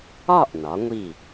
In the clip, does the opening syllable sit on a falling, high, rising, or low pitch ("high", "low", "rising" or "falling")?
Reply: falling